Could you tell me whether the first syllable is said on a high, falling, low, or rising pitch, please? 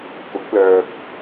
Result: rising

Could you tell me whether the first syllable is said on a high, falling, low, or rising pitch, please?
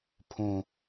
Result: low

